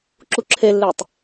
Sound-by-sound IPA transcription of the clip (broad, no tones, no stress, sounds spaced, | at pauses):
ǁ u ǁʰ e lː e tˤ